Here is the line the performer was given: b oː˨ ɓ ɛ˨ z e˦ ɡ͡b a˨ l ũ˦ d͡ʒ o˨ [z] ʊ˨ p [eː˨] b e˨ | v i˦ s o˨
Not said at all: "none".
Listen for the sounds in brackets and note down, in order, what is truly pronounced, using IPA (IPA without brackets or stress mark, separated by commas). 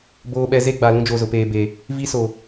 z, eː˨